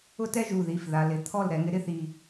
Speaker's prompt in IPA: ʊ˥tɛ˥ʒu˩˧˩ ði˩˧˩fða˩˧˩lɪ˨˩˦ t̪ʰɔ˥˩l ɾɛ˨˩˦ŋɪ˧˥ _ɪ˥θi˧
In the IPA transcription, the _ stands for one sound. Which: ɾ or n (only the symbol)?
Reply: ɾ